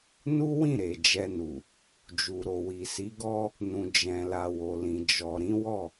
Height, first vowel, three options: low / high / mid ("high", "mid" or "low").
high